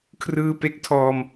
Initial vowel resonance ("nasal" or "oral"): oral